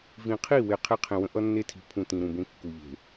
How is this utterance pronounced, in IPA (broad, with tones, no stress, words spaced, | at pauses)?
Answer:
vĩ˨ qʰi˦˨we˨ qʰe˦qʰẽ˨wə̃˦ ʔʌ˦nːe˦tʰi̤˨ pʰũ˨ tĩ˨ɾũ˨bẽ˦ kːu˨ʎe̤˨